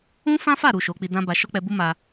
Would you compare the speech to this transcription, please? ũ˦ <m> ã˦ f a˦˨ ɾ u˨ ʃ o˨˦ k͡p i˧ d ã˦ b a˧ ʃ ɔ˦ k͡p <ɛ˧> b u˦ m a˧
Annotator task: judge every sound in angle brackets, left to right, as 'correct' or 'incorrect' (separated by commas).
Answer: incorrect, correct